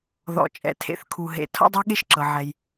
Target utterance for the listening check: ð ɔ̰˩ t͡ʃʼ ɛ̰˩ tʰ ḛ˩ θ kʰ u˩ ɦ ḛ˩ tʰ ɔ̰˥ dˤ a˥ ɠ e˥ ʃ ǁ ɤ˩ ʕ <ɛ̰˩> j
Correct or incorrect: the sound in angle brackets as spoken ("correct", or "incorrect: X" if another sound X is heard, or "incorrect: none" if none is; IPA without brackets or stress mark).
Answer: incorrect: ɛ˩